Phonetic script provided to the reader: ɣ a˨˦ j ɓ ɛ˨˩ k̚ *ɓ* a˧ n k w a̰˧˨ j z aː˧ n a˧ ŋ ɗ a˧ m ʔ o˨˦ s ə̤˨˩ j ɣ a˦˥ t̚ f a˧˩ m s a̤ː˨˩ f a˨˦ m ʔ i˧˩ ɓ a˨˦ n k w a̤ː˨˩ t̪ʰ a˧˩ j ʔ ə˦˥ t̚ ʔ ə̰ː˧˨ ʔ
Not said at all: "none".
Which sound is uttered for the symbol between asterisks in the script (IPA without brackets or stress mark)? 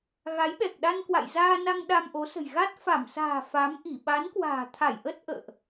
ɗ